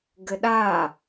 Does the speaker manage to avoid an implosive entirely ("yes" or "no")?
no